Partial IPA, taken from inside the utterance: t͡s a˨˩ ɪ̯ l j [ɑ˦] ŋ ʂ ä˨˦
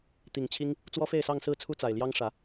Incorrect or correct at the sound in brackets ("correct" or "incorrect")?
correct